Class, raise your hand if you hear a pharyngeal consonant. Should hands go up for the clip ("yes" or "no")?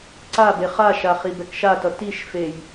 no